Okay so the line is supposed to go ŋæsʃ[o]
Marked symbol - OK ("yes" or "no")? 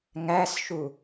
no